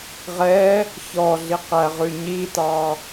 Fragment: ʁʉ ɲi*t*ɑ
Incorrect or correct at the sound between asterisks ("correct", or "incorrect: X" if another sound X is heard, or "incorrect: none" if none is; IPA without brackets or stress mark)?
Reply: correct